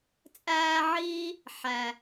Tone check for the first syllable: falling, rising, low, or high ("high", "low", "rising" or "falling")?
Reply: high